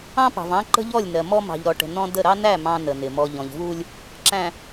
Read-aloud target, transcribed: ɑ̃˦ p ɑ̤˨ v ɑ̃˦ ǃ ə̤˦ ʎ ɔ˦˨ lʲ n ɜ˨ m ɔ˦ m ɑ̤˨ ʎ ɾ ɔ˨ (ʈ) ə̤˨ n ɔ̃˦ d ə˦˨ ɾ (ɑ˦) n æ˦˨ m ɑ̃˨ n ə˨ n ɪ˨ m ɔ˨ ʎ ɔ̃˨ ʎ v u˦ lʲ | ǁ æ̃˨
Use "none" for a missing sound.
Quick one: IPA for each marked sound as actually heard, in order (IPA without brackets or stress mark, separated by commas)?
ʈ, ɑ˦